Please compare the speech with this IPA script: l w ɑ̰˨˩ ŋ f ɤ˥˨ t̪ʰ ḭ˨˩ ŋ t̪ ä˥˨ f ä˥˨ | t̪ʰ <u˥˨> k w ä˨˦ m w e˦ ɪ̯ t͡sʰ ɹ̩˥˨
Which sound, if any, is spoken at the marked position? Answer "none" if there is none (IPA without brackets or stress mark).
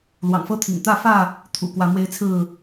ṵ˨˩